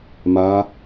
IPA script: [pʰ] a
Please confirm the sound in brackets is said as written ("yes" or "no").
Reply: no